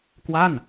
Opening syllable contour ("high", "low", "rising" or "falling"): falling